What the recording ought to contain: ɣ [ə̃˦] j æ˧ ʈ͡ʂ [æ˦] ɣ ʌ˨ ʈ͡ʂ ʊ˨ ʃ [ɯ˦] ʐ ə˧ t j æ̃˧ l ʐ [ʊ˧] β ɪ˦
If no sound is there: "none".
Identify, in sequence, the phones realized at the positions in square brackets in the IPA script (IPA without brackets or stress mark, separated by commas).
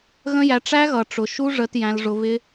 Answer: ə̃˦, æ˦, u˦, ʊ˧